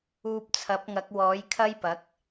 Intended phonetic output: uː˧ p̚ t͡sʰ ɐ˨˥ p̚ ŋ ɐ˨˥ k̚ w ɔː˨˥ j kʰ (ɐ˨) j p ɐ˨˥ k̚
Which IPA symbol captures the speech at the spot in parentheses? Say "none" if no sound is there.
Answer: ɐ˥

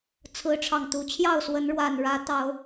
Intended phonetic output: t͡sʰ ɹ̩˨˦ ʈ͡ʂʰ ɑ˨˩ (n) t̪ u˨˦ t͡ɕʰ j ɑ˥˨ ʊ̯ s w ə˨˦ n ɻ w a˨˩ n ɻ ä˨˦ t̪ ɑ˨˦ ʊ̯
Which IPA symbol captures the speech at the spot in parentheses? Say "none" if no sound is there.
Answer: ŋ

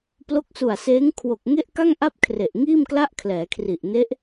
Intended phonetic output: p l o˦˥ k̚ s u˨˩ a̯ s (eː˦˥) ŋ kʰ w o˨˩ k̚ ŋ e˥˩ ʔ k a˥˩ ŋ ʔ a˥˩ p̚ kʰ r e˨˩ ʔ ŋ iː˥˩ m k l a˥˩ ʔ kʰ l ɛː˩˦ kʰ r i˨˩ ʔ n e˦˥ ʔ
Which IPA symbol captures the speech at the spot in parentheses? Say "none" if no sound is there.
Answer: eː˦˥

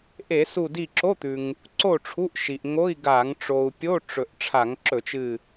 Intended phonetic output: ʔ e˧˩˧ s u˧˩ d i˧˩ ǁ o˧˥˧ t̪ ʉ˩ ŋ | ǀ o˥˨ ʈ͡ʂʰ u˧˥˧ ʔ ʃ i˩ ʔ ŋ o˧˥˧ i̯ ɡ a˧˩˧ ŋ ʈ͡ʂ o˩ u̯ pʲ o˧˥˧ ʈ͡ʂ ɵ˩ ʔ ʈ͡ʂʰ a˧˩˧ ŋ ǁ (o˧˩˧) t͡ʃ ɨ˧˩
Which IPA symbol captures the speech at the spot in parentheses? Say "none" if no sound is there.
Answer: ɵ˧˩˧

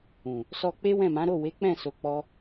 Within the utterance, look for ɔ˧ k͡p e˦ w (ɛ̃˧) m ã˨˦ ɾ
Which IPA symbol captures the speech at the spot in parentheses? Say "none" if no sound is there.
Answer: ɛ̃˦˨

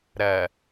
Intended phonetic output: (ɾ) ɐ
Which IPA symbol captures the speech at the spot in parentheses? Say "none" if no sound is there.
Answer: ɾ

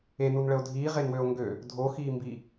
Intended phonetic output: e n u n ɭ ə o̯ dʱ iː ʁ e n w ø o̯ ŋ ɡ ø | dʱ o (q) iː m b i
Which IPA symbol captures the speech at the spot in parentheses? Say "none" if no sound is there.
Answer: x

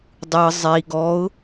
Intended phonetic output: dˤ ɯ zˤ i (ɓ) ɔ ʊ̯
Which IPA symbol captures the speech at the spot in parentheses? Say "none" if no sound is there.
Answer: ɡ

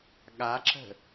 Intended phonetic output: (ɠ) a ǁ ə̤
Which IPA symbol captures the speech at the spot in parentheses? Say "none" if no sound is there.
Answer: ɠ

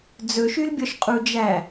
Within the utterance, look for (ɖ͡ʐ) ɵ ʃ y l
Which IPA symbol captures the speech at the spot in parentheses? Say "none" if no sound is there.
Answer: d͡z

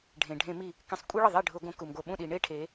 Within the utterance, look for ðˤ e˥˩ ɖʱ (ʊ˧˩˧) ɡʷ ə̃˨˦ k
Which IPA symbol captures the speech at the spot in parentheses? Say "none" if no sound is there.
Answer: ʊ˧˩˧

